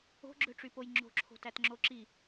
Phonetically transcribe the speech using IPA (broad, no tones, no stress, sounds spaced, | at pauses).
o̤ ɡ͡ǁ ø ʈ͡ʂ y p o j ŋ͡ǁ o̤ ǁʰ o̤ t æ t ŋ͡ǁ o ǁ i